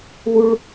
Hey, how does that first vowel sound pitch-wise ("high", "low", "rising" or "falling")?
high